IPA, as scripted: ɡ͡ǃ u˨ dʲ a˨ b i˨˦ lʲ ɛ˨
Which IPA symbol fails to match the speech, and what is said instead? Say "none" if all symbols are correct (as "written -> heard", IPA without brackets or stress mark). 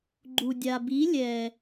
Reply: none